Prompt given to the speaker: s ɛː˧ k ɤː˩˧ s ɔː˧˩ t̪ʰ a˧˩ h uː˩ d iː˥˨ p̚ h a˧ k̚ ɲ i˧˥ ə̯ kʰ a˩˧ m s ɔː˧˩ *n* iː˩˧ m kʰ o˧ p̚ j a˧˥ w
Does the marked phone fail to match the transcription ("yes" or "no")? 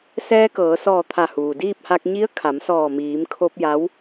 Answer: yes